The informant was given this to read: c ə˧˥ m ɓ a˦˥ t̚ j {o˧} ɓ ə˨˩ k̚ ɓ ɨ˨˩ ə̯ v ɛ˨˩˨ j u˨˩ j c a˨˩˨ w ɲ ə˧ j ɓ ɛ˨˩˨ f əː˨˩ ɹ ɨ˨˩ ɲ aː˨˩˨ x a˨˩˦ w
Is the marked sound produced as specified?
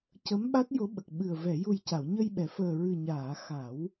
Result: no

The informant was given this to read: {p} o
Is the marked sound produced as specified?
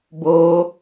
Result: no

